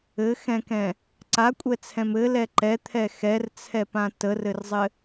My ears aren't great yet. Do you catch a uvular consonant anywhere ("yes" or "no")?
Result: no